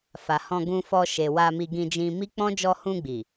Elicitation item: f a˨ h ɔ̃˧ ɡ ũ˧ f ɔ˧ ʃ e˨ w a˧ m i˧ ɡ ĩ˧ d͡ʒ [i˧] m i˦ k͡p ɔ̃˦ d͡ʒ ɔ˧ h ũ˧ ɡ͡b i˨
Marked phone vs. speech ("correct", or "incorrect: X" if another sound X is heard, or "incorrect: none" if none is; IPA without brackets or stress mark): incorrect: ĩ˧